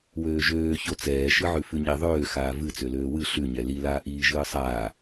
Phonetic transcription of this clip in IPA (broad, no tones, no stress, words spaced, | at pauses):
wøːʒøː çot͡sɛː ʃɨʕʉfʉɲi ðˤøː xaːvɨ t͡søløːwɨ ɬʉ ɲɛli laːʔiː ʒɨːsˤaː